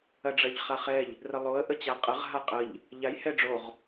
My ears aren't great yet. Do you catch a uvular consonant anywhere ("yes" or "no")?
yes